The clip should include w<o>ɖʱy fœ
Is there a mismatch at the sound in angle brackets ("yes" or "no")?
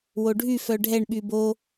no